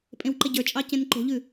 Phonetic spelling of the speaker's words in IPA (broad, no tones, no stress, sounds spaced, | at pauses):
pʼ ẽ w ǃ e ɟ ə˞ t͡ʃʼ ɑ c ẽ n ǃ o̤ ʎ ʉ